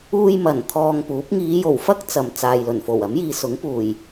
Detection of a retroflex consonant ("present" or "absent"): absent